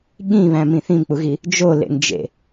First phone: ɠ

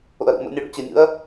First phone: o̰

